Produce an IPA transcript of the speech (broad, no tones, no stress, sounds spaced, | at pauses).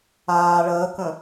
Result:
aː ɭ əː k ə̃